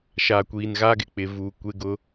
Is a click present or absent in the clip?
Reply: absent